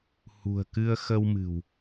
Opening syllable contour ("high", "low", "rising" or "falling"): low